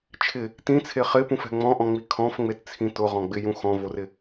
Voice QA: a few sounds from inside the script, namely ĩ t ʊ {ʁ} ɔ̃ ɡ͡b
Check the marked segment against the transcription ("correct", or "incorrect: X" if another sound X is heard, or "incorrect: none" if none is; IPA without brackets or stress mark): correct